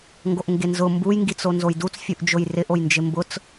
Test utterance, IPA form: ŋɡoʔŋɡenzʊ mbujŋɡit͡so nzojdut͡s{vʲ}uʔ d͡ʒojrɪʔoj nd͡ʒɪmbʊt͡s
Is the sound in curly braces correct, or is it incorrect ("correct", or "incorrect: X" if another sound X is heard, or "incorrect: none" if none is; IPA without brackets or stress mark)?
incorrect: fʲ